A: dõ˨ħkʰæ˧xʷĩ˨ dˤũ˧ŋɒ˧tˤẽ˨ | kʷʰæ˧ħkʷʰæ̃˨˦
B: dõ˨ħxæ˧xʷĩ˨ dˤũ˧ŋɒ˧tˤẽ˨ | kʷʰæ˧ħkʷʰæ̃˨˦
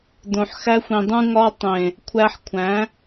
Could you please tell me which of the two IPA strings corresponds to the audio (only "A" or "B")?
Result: B